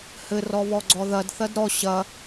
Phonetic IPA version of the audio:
hɘ rɔβɔɡ͡ǀɔðɐd θɐdɾɔ ɕɐ

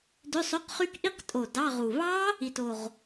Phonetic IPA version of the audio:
dø˧˥˧sˤø˧˥˧qχy˦˥k ʔi˦˥qtʼo˨˩ dɑ˧˥˧ʁu˨˩ βɑ˦˥ | i˨˩to˨˩ʁ

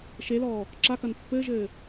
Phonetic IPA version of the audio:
ʃelɔː | ǁakɐn pːɘːʒɘː

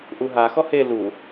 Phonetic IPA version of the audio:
ʔuɦaxɔ he lu

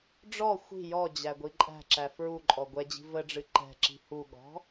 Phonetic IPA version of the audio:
ɖ͡ʐɔ xʷi̤ jɔd͡ʑæɡʷi ǃʼæ̤ǁæ fɹuǃʼɔ ɡʷɛd͡ʑi̤ vəɖ͡ʐɨ ǃɛ̤ǁi̤ huɠɔ̤

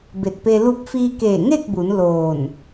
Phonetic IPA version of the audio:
be˧˩t̚pe˧ lu˧p̚fiː˧keː˧˩ ŋe˥˨k̚bu˩˧n loː˧˩n

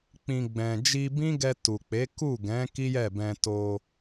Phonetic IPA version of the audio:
k͡pĩ˨ ɡ͡bɛ̃˨ d͡ʒi˧bĩ˦ɡɛ˧ tu˨k͡pe˨˦ ku˦˨ɡɛ̃˨˦ ki˦jɛ˦˨bɛ̃˧ to˧

